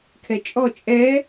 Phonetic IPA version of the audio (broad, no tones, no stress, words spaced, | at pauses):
kʰɛt͡ʃʼɔ t͡ʃʼɛ